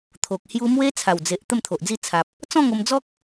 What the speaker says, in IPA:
t̪ʰ o˨ k̚ h j u˧ m w e˦ t͡sʰ a˨˩ w d͡z e˨ ʔ t̪ ə˥˧ m t̪ʰ o˨ ʔ d͡z i˥˧ t͡sʰ a˨ p̚ | t͡s ɔ̃˥˧ ŋ o˧ m d͡z ɔ˦ k̚

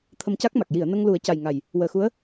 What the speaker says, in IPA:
t̪ʰ ə˧ m c a˦˥ k̚ m a˨˩ k̚ j i˨˩˨ ə̯ n ə˧ ŋ l u˨˩˦ ə̯ c a˨˩ j ŋ a˨˩ j | w əː˨˩ x u˧˥ ə̯

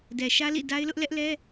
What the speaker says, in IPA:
d ɛ˨ ʃ ä˦ l ḭ˦˨ d a˦ ɪ̯ l ʊ˦ ʔ l ɛ˦ ʔ l ɛ˦

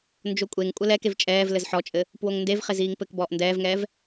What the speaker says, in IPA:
n d͡ʒ o kʷʼ e ŋ kʷʼ ɘ l ɛ k e v t͡ʃʼ ɛː v l ɘ z ħ ɔ t͡ʃʼ ɘ | p w o ŋ n d e v χ e z iː ŋ p ɘ k b ɔː ʔ n d ɛː v ŋ ɛː v

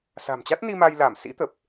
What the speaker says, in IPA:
s a̤˨˩ m t͡ɕ a˦˥ t̚ n i˧ m a˧ j l aː˧˩ m s ḭ˧˥ t̪ ə˨˩ p̚

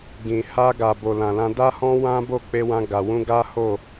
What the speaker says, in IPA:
ɡ ĩ˨ h a˧ ɡ a˨ b o˨ l ã˨ l ã˧ d a˦ h ɔ̃˦ w ã˦ b o˦˨ k͡p e˧ w ã˧ ɡ a˨ w ũ˧ ɡ a˦ h o˦˨

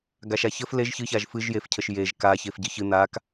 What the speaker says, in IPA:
ɡ a ʃ a ç ə f l e ʒ ç ɨ ç a ʒ f ɨ ʒ j e f cʰ ə ʃ j e ʒ k a ç e f ɟ ɨ ç ɨ n̪ a k

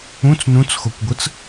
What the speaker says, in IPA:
ũ t͡s n ũ t͡s x o kʷ ɡʷ ɯ t͡s

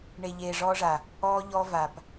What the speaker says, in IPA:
ɳ e˨ ʎ eː˨ ʐ ɔː˦ ʐ a˨ | ɔː˦ ʎ ɔ˦ v a˨ p

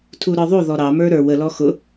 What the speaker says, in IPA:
tʰ u ɾ ə˞ ðˤ u ð ɔ ɾ ɑ m ə˞ ɾ ə˞ w ə l ɔ x ʊ

